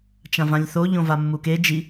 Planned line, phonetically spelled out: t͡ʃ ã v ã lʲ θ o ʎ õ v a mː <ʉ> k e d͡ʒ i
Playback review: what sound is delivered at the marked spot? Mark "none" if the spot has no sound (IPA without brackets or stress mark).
u